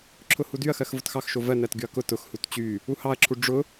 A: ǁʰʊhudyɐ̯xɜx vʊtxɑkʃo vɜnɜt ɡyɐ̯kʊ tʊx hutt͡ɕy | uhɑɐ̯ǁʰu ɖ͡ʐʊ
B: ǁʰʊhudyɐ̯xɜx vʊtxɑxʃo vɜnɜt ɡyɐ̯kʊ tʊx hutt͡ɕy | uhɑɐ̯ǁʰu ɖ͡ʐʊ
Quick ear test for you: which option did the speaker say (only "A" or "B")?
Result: B